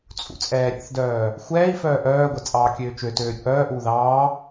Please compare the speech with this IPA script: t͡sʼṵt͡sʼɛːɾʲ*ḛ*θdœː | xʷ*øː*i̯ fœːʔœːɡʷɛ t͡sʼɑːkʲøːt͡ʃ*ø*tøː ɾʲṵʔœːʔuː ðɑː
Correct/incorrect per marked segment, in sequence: incorrect, incorrect, correct

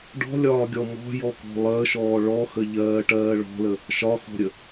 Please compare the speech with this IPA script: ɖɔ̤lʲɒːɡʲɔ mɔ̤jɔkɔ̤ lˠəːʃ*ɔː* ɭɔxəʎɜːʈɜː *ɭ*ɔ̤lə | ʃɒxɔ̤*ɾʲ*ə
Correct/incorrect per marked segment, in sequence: correct, correct, correct

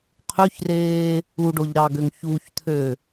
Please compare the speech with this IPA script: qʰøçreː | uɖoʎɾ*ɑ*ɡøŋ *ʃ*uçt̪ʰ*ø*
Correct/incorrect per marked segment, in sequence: correct, incorrect, correct

